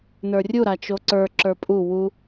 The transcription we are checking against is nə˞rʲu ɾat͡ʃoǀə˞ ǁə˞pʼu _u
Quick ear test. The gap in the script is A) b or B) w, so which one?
B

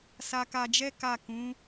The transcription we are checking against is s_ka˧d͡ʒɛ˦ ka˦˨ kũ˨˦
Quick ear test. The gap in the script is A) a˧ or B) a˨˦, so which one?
A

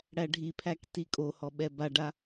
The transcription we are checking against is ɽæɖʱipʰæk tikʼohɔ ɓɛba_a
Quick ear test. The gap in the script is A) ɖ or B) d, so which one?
A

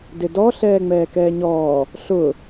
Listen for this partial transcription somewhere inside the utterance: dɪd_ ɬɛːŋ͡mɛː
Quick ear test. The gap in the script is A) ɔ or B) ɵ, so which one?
A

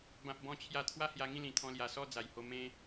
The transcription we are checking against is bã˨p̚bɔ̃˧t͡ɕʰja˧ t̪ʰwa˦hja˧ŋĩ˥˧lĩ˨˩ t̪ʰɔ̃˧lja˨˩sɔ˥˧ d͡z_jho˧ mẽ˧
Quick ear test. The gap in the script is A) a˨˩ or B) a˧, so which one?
A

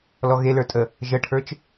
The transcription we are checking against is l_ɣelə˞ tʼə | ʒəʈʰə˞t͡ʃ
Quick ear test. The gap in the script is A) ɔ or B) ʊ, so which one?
A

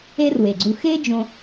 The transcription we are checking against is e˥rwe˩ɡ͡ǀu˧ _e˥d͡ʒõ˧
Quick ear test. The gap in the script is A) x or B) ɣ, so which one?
A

